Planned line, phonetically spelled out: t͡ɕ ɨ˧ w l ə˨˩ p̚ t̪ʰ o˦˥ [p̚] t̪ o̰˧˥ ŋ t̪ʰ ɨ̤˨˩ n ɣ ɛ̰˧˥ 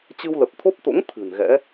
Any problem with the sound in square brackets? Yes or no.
no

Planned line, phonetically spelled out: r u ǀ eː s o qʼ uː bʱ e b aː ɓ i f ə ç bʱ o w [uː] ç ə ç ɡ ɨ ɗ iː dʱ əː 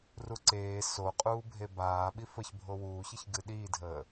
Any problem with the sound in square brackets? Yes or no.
no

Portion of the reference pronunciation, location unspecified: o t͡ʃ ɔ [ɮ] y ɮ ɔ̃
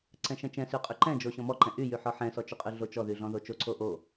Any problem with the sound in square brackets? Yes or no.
yes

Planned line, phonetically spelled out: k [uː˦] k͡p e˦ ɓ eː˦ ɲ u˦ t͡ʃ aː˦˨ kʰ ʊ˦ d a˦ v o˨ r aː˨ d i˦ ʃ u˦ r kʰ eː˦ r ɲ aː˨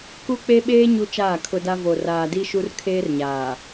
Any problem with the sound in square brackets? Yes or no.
yes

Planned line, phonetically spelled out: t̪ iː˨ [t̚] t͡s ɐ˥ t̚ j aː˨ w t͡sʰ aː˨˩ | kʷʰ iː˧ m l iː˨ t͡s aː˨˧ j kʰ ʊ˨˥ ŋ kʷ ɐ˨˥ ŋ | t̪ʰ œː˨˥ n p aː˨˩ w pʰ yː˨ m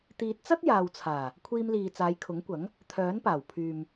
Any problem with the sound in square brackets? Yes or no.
no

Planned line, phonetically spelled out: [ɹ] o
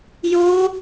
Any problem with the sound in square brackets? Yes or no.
yes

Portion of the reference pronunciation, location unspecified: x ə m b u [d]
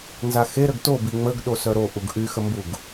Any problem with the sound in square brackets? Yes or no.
yes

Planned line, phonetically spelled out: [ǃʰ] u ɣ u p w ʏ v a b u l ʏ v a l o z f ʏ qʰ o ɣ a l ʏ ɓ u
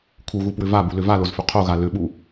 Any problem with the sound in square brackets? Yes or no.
yes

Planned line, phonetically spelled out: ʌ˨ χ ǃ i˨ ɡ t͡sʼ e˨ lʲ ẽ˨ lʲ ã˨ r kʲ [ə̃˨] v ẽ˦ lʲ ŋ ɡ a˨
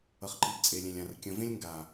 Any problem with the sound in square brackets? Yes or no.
no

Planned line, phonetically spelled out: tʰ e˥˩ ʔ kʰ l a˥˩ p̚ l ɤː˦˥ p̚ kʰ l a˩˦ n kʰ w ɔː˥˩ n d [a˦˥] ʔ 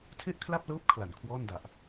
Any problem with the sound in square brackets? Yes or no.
yes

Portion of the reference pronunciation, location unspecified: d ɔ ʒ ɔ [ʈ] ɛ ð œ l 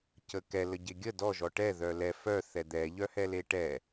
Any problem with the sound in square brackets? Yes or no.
no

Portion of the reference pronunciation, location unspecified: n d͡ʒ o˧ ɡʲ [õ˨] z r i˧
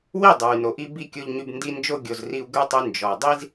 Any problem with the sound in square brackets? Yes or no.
yes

